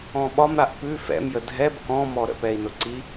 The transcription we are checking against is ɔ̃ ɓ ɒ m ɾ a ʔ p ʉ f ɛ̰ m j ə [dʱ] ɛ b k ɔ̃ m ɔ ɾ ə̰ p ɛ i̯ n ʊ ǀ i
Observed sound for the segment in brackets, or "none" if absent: dʱ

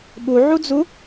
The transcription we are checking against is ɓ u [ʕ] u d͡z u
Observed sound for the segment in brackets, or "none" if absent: ʕ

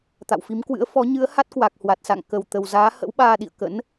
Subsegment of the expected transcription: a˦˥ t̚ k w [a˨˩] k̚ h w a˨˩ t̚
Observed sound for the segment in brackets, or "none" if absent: a˨˩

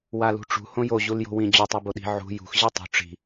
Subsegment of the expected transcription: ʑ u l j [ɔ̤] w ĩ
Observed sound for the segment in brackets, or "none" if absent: o̤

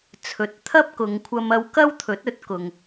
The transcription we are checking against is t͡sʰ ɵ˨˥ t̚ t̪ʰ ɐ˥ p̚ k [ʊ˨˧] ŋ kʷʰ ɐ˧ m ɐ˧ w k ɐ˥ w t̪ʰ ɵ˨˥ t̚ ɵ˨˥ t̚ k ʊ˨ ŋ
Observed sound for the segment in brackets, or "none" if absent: ʊ˨˧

